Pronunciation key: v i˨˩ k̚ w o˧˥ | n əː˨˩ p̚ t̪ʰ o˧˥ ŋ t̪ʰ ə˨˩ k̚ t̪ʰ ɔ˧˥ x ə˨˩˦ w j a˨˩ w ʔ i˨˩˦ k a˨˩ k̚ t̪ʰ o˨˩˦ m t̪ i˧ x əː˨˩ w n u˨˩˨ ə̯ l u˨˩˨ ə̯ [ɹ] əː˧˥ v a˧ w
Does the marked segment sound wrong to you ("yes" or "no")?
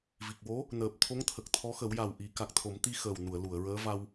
no